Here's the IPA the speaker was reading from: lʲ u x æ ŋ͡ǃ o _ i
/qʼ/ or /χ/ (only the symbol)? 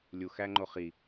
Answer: χ